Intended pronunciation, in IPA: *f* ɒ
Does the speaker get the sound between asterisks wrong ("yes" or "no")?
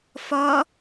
no